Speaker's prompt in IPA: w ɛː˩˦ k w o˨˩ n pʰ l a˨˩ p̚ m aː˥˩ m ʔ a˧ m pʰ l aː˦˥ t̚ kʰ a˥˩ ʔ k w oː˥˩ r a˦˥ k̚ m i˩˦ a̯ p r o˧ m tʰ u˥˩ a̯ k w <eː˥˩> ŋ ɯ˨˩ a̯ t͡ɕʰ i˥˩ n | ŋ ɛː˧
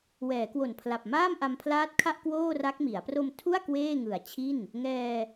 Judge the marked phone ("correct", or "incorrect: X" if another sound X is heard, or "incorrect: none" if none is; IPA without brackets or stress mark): correct